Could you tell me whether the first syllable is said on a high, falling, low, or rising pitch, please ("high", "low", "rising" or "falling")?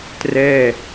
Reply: falling